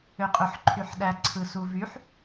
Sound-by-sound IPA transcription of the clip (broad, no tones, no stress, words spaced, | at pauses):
øqʼøħǃʰyħɗæ ǀʰɯsuvyħ